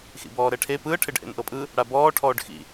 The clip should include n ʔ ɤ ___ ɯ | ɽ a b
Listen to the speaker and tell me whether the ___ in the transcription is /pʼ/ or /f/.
pʼ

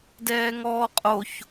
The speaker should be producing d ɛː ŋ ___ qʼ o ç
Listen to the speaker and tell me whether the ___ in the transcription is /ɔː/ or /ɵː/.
ɔː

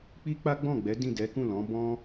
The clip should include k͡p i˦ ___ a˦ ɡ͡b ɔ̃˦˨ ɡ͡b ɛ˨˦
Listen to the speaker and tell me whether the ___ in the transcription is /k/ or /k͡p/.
k͡p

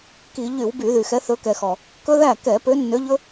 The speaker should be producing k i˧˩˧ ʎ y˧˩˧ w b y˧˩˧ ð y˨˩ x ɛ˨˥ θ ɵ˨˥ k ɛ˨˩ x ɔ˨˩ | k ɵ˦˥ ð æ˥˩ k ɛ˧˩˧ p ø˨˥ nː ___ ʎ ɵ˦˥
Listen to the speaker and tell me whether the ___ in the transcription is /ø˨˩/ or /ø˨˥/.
ø˨˥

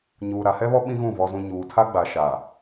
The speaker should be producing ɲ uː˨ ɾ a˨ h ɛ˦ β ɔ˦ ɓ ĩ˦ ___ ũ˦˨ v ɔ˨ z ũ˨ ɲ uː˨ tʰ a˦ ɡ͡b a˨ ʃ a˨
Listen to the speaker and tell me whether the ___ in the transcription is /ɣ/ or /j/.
ɣ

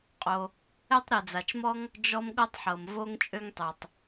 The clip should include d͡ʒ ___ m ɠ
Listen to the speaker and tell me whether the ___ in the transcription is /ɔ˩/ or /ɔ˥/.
ɔ˥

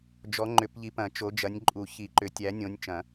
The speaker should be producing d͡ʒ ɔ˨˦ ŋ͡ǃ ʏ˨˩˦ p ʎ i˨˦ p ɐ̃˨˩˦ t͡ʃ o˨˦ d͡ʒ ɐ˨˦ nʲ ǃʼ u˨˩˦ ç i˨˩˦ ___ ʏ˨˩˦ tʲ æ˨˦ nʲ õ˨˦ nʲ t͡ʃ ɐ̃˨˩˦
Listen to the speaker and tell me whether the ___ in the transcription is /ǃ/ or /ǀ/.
ǃ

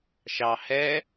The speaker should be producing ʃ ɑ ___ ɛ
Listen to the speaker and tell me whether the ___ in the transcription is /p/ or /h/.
h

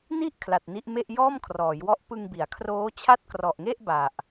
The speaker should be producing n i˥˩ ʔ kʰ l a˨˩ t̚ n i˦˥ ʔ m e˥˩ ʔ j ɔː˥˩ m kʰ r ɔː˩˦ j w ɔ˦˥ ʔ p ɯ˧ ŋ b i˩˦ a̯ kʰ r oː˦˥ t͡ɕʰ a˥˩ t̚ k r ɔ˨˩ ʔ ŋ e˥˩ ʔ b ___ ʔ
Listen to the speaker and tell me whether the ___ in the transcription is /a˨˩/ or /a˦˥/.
a˨˩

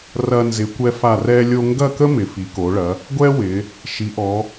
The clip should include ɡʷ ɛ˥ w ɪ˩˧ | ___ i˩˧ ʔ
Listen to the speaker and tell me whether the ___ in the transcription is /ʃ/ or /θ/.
ʃ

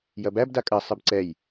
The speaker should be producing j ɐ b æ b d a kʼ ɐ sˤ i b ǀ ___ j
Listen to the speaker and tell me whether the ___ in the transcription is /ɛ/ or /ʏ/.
ɛ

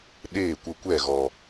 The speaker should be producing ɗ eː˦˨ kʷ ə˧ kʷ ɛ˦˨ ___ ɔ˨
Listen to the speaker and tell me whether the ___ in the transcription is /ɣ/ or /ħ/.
ɣ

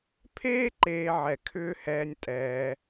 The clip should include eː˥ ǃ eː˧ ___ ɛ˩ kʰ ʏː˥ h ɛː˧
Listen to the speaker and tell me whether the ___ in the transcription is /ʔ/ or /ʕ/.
ʕ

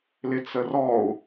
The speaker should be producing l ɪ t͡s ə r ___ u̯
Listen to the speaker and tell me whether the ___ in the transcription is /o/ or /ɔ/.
ɔ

